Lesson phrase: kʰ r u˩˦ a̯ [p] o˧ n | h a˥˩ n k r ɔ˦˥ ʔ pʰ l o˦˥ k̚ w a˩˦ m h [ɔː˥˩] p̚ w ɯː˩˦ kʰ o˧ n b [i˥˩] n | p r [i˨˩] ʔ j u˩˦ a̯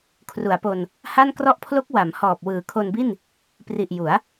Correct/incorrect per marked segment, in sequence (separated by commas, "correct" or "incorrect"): correct, incorrect, correct, correct